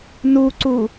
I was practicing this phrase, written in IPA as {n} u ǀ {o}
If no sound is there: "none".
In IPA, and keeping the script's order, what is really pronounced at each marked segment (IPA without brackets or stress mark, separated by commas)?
n, u